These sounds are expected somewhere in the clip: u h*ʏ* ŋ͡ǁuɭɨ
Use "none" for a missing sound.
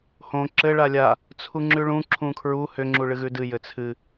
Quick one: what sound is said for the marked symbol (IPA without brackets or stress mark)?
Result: ʏ